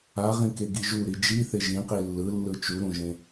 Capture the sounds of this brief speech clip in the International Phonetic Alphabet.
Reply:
a ʁ ĩ k e ɡ i ʒ u ɾ i d͡ʒ i θ e ʒ ĩ q i lː ɯ lː ɯ t͡ʃ u ɾ ũ ʒ ẽ

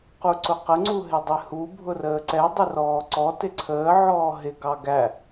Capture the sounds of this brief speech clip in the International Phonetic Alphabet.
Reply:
q u ǀ ʊ q ə ŋ͡ǀ u ɦ ɪ dˤ ɪ h u bʱ ʊ r əː ǀ ɛ dˤ ɪ r ɔː ǀ ɔ t ɪ ǀʰ əː ʕ ɔː ɦ ɪ ɡ ɑ ɡ æ

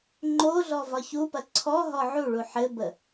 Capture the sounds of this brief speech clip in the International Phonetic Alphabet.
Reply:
ŋ͡ǃ o ɮ ɔ v ɒ ç u p ɐ ǀʰ ɔ ɦ ɔ ʕ u ɭ u ħ ɘ b ə

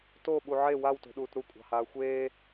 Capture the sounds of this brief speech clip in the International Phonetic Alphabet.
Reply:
t o ɓ u ʕ e w a w t o̤ ɗ uː t ɾ u kʷʼ ɑ̤ h aː xʷ eː

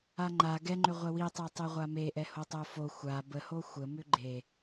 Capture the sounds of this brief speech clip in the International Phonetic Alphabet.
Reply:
a ŋ͡ǃ a ɡ ɛ ŋ͡ǃ ʏ ʁʷ ɛ w i tˤ e tˤ e ʁʷ a m e ʔ ɛ h o tˤ o f o xʷ a b ə h o xʷ ə m ʏ ɡ͡ǃ e

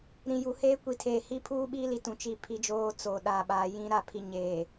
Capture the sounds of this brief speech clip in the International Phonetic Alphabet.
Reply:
ɾ ĩ˨ j u˨ h eː˦ kʷ i˨ tʰ eː˨ h i˦ pʰ uː˦ ɓ iː˦ l i˨ t ũ˨ t͡ʃ i˦˨ pʰ i˦ d͡ʒ oː˦ t͡s o˨ ɗ aː˨ ɓ aː˨ j ĩ˦ ɾ a˦˨ pʰ i˦˨ ɲ eː˨

